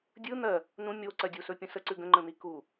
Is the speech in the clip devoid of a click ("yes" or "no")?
no